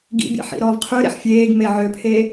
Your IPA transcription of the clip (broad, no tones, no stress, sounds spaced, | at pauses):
ɡ ḭ bʲ ɑ̰ ħ ḭ ɾ ɔː v qʰ ʉ ɾ ḛ ħ fʲ eː ɡ m e ʕ ø pʰ eː